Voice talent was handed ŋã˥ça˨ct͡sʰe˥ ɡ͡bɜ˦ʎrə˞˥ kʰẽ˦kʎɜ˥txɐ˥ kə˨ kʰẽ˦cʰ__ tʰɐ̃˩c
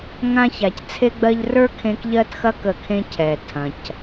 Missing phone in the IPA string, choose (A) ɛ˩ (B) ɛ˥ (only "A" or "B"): A